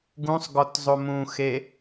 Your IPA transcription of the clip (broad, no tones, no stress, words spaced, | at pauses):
ɡũsˤɡɔtzˤo mũxe